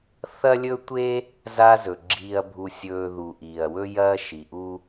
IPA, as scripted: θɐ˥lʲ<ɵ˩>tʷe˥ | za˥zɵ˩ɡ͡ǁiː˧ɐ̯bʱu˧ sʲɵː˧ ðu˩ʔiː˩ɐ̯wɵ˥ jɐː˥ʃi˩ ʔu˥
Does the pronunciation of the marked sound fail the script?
yes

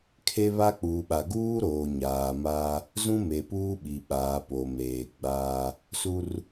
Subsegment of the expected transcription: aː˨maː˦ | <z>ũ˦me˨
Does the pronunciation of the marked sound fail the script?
no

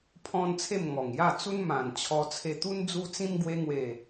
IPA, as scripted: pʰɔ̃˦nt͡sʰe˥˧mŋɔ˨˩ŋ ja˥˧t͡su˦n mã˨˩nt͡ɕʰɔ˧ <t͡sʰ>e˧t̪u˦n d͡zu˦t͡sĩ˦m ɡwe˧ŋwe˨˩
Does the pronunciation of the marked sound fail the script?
no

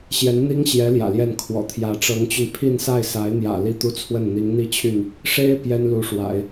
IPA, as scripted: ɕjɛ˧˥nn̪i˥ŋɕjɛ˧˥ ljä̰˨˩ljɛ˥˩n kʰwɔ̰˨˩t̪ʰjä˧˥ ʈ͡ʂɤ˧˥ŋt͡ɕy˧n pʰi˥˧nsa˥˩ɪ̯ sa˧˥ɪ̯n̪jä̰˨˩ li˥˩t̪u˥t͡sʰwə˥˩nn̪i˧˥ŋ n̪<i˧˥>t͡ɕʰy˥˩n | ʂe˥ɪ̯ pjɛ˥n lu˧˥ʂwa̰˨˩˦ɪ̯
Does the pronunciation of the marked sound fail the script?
yes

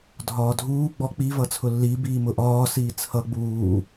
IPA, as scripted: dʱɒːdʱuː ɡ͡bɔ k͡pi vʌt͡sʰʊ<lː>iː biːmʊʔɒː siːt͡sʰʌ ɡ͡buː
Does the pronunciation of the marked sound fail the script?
no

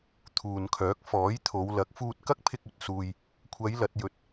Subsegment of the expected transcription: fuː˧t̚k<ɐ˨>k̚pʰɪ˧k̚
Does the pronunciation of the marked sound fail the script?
yes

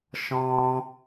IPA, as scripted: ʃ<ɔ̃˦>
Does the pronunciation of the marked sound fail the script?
no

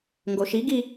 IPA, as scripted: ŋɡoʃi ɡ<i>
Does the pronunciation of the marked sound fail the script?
no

